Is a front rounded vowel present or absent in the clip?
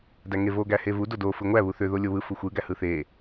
present